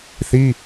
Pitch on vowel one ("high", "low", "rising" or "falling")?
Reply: high